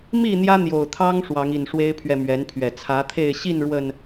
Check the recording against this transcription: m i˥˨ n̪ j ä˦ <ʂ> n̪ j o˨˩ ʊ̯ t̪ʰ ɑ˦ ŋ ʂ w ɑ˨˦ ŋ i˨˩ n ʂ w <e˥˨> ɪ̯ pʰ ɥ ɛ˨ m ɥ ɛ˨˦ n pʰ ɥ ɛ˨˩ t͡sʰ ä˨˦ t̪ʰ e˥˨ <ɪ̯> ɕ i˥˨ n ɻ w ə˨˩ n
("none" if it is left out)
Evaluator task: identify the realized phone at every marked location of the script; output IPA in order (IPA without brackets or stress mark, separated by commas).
none, e˦, ɪ̯